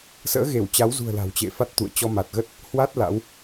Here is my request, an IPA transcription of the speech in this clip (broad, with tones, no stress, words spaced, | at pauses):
sə̰ː˧˥ɣe˧˩wt͡ɕa˨˦wzṳ˨˩ə̯ la̤˨˩wt͡ɕḛ˧˨fa˦˥t̚t̪ṵ˧˨ə̯ t͡ɕɔ˧ma˨˩t̚ɣə˦˥t̚ | hwa˦˥t̚ la̰˧˥w